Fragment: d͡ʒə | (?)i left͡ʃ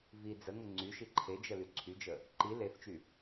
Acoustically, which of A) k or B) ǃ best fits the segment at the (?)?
B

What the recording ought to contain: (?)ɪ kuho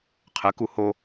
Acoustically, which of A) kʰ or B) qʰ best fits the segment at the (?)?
B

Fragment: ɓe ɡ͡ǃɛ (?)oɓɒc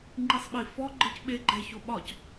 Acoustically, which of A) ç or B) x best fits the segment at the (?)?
A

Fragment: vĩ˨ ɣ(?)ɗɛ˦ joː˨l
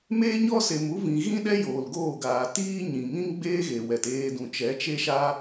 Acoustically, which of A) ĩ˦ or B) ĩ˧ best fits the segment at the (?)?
A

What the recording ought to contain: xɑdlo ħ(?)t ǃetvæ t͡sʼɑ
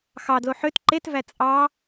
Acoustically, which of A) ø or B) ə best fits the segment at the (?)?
A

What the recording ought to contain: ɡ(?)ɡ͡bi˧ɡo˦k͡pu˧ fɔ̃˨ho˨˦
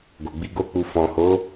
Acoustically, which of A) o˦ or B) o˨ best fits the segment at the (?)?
B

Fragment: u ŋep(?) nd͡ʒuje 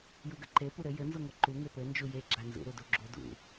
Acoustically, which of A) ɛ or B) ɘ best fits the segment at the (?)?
B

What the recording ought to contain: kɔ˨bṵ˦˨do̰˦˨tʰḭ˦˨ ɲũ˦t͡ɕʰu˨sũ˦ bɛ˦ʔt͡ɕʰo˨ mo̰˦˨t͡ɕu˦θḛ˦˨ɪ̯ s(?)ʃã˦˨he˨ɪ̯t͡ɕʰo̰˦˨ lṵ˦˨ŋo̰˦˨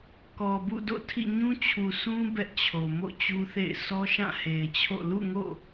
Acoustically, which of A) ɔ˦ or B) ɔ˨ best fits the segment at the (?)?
A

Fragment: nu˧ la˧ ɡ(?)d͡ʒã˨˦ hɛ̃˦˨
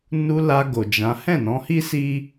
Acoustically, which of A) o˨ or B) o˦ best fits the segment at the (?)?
A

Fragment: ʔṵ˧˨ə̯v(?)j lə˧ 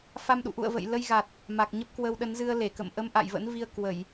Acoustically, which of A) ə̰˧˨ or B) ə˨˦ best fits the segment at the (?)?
A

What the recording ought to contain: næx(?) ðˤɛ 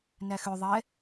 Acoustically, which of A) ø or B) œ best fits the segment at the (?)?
A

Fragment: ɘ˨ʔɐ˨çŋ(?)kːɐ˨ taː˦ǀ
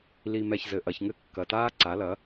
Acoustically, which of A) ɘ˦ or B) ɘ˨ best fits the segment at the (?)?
A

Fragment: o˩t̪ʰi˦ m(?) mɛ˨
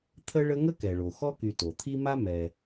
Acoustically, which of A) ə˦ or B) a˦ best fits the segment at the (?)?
B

